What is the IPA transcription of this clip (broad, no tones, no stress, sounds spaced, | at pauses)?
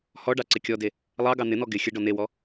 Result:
h ɔ ɖ ɑ ǀ ɪ kʲ ɔ d e | lˠ ɑ ɡ ɑ n̪ ɪ n̪ ɔ ɡ ɪ xʲ ə ɖ ɔ n̪ e w ɔ